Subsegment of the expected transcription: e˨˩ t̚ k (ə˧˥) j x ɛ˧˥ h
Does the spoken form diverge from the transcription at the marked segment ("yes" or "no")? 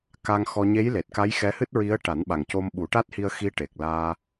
yes